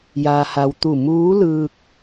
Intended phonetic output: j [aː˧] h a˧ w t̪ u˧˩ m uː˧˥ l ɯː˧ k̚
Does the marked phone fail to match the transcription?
no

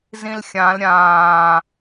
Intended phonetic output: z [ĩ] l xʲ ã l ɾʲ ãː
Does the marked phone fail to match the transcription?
no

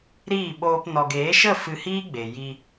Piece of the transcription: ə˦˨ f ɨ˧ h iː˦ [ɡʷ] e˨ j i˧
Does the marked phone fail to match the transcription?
yes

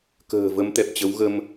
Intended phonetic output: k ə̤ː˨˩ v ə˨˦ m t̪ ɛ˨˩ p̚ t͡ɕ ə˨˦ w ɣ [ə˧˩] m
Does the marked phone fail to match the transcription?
yes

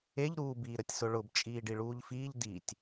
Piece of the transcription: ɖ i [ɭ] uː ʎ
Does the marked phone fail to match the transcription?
no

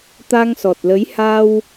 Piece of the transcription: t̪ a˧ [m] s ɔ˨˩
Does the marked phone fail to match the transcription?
yes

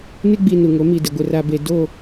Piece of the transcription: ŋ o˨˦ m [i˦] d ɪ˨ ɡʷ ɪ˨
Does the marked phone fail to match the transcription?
yes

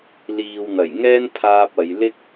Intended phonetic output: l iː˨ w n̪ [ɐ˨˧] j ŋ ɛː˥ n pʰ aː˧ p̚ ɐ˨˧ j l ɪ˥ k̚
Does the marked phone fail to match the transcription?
yes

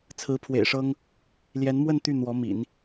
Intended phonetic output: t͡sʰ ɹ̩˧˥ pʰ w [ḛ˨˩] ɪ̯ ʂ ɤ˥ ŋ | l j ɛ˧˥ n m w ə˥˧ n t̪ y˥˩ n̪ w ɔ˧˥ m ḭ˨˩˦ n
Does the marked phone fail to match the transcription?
no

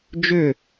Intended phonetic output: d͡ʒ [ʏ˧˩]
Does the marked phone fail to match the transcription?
no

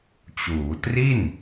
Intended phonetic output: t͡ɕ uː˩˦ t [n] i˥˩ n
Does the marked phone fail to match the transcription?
yes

